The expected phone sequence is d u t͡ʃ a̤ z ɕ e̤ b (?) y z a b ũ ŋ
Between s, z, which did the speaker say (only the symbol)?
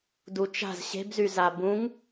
z